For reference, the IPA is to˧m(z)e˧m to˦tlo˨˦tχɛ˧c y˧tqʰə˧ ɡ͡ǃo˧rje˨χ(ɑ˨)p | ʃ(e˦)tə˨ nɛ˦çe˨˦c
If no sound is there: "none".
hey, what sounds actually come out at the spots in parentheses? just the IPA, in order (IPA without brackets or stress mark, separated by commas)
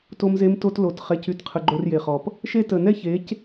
z, ɔ˨, e˦